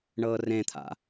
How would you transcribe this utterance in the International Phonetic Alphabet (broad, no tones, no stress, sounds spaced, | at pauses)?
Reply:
ɳ ɤː r ẽ t̪ʰ a̰